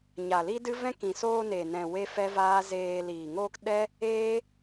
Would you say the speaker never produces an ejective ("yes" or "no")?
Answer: yes